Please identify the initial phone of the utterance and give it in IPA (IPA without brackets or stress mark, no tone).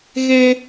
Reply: ɣ